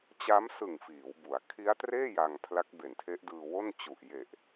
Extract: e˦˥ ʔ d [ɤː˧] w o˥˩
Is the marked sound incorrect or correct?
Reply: incorrect